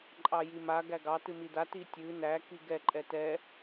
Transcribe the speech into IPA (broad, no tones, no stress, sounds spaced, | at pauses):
ǃʼ ɑ j i m a ɡ æ ɡ ɑ t ɨ m i d a t i tʲ ɨ n æ k i ɡ ɛ ǃʼ ɛ t ɛ